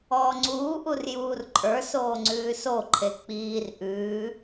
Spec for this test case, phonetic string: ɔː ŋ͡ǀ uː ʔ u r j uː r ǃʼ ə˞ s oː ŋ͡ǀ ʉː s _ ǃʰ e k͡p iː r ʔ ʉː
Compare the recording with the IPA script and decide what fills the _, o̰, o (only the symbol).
o